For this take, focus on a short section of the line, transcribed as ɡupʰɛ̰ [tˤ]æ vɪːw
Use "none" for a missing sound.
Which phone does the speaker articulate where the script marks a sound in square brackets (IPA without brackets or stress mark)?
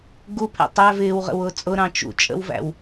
tˤ